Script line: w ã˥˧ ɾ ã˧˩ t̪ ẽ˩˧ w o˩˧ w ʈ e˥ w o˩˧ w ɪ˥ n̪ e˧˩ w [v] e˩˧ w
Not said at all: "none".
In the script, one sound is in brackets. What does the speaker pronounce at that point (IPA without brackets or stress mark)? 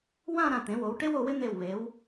β